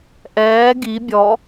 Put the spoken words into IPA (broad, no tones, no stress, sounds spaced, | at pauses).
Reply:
ʔ ɛː ɡ i bʲ ɔ